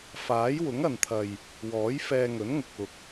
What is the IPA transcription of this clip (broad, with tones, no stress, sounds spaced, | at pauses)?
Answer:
f aː˨˥ j w ʊ˨˥ ŋ ɐ˨ n t̪ʰ ɐ˨ j | w ɔː˨˥ j f ɛː˧ ŋ ɵ˨˥ n ŋ ʊ˨ k̚ ʊ˨ k̚